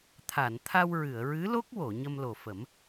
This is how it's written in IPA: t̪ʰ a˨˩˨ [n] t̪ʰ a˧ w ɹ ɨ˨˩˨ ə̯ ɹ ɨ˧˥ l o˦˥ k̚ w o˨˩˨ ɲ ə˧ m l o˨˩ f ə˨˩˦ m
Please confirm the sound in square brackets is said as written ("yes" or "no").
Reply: yes